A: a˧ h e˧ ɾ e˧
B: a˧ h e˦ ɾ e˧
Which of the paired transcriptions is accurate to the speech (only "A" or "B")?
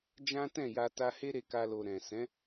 B